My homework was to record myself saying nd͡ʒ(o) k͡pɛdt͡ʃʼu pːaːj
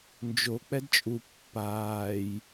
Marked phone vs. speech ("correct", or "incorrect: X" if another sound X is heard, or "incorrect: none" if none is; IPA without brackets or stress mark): correct